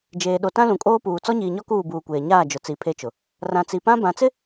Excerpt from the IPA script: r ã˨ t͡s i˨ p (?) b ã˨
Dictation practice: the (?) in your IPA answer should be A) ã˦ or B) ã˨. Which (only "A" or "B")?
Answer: A